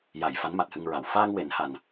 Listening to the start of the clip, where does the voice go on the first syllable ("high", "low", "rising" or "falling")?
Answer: low